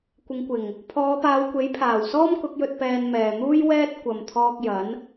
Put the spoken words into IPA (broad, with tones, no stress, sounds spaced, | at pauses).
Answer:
kʷ ɪ˨˧ ŋ kʷ ɪ˨˩ ŋ | pʰ ɔː˨˧ p aː˨˧ w kʷ e˨˥ j pʰ aː˨˩ w s ɔː˥ m k ʊ˨˥ k̚ j ɵ˧ t̚ p ɛː˧ n m ɛː˨ n̪ uː˥ j w ɛː˥ t̚ kʷ ɐ˨ m t̪ʰ ɔː˧ k̚ j ɐ˨˥ n